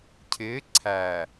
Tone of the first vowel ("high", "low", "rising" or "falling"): rising